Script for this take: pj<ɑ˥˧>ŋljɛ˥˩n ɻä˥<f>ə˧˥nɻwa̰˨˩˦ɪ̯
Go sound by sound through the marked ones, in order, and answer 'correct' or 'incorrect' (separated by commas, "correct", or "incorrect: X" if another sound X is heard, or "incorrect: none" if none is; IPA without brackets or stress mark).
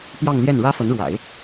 correct, correct